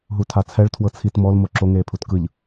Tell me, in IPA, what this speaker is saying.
ɦ u tʰ a t͡sʰ ɛ ɭ tʰ w ɤ t͡sʰ i t m ɔ l m o ǁ o ŋ eː pʰ u t k ɯ ʎ

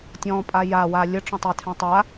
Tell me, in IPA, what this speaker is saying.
tʲ ɔ̃ pʼ a j a w a lʲ ə ʈ͡ʂ ɔ̃ tˤ ɘ tʰ ɛ̃ tˤ a

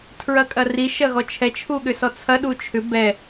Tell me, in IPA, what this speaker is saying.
tʰ ɹ ɐ kʼ ɐ r i ʃ ɐ ɣ ɔ t͡ʃʰ ɛ t͡ʃʰ u ɠ ʏ s ɔ t͡sʰ ɐ ɗ u t͡ʃʰ ʏ b ɛ

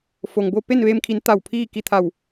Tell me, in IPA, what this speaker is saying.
f o˩ ŋ b o˧ p e˥˨ n ʋ eː˧ m kʰ i˩˧ n t̪ a˧˩ w pʰ iː˥˨ k i˧˩ t̪ʰ a˧˩ w

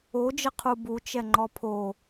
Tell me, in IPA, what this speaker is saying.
o d͡ʒ ə qʰ u b u t͡ʃ ɛ ŋ͡ǃ ɔ pʰ o

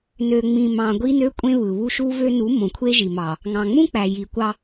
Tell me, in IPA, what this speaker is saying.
n ø˨ ŋ͡m ĩ˨ m ɑ̃˨ ɡʷ i˦ n ø˦ kʷʼ ẽ˦ β ɯ˨ β u˦ ʃ u˦ v ø˦ n u˨˦ m õ˨ kʷʰ e˦ ʒ i˨ m ɑ˨ | ŋ ɑ̃˨ ŋ͡m ũ˦ k͡p æ˨ j i˨ kʷ ɑ˦

